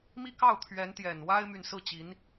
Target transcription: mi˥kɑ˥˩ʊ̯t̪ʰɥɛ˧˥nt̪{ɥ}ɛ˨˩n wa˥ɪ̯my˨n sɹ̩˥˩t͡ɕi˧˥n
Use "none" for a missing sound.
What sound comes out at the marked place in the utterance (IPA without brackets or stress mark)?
j